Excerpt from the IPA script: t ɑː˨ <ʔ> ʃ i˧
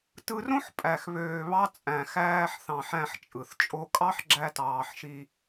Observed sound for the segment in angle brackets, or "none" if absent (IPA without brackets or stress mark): ħ